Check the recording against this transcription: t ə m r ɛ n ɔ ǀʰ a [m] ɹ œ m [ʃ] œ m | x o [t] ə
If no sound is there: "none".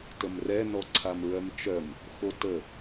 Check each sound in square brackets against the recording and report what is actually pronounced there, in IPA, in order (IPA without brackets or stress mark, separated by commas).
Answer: m, t͡ʃ, t